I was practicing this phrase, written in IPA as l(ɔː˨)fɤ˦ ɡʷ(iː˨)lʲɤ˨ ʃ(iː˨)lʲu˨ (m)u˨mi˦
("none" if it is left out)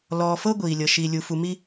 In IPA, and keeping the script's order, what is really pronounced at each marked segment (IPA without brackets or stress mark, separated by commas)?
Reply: ɔː˨, iː˨, i˨, f